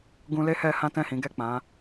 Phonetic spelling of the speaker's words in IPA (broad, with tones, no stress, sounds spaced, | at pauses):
ɡ ũ˧ l e˦ h ɛ˧ h ã˦ t ɛ̃˦˨ h ĩ˨˦ ɡ ɛ˦˨ k͡p ã˨˦